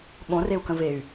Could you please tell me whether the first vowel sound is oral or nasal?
nasal